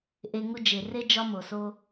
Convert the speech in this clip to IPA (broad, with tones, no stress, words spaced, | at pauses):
ʔe˧ŋu˦ d͡ʒe˨re˦ d͡ʒɒ˦mo˨so˦